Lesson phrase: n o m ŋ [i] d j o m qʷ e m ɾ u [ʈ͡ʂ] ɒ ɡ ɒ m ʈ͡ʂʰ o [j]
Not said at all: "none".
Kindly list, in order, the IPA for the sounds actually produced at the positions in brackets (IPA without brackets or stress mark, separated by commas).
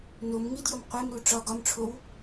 i, ʈ͡ʂ, w